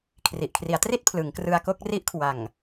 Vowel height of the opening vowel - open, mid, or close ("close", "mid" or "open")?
close